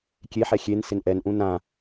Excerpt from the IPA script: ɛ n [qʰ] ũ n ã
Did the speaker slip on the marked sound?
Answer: yes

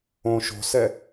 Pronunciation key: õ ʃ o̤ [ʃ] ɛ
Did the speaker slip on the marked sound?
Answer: yes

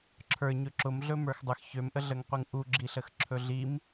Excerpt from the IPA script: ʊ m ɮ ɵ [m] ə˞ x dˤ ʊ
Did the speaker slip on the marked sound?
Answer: no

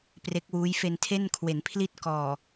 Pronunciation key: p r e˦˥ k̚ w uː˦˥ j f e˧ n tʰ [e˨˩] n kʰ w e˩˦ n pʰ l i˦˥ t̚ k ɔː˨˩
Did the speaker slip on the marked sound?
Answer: yes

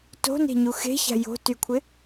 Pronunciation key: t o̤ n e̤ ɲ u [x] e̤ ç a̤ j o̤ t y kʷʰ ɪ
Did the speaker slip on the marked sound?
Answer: no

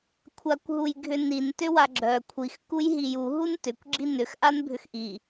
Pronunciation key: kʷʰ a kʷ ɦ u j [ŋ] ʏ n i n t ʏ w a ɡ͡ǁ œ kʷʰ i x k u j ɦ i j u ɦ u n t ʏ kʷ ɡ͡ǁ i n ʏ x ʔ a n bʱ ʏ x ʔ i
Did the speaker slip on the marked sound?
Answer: yes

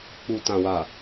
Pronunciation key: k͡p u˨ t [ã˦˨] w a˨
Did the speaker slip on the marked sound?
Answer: yes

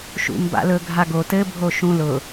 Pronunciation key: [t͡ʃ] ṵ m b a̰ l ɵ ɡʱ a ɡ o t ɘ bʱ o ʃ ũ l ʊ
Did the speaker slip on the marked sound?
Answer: yes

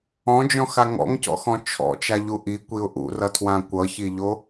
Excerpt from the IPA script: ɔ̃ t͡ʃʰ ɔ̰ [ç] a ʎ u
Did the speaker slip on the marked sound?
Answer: yes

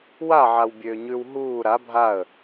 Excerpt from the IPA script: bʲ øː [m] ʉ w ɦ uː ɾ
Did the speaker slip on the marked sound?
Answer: yes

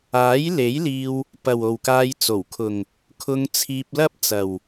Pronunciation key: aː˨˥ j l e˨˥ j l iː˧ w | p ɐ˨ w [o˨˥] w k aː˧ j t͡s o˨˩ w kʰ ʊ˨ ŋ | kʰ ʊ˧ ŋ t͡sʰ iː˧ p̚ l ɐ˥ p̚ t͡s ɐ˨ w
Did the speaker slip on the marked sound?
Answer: yes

